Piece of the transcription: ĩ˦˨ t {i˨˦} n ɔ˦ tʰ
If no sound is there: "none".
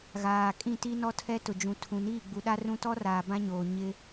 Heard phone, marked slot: i˦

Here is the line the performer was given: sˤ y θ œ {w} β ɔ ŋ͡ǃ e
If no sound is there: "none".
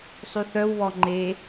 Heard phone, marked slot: w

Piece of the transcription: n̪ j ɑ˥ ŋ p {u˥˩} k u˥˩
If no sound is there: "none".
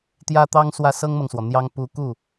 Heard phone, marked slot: u˧˥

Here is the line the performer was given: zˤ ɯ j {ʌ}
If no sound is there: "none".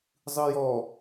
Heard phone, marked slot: ɔ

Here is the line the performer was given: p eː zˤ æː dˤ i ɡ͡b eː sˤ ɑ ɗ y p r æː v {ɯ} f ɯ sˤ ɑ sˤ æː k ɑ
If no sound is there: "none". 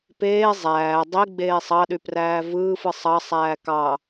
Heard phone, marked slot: ɯː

